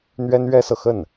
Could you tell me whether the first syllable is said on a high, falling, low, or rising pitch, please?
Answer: high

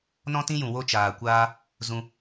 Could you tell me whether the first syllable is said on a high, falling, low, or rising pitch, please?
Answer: high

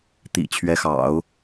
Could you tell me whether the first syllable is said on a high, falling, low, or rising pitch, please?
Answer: low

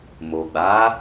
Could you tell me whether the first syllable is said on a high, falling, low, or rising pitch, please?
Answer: low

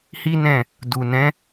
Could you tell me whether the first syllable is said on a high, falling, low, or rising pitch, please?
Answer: high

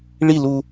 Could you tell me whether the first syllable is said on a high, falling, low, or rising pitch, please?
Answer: falling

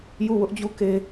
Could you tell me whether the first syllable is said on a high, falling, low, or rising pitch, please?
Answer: falling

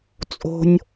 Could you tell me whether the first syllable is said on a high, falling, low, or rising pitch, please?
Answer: low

